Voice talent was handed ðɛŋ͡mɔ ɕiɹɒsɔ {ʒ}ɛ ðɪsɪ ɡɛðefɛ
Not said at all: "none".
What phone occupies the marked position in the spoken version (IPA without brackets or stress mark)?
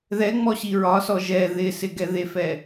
ʒ